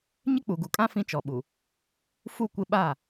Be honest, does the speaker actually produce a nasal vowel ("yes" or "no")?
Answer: yes